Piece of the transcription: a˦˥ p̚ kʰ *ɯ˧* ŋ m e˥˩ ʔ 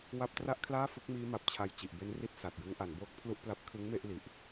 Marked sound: incorrect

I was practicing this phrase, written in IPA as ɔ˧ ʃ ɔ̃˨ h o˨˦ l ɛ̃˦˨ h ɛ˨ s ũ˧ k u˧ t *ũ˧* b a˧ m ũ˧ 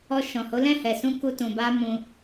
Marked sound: incorrect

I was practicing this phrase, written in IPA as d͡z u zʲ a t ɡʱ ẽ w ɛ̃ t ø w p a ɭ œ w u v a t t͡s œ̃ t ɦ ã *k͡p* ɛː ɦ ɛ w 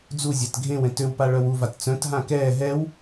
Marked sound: incorrect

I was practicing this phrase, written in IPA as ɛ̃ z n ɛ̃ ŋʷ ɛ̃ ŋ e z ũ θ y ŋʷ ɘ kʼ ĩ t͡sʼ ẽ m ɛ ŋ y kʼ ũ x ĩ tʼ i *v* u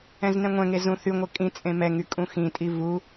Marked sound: correct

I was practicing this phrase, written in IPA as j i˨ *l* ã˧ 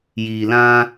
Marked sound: correct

